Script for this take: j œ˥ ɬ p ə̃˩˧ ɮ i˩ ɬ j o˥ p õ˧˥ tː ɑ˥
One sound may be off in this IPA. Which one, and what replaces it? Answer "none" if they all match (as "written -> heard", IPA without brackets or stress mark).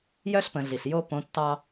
none